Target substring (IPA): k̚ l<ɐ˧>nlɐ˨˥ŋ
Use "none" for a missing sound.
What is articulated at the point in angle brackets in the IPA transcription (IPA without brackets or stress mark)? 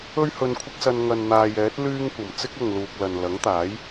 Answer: ɐ˨